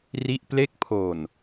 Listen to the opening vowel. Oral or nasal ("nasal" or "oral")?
oral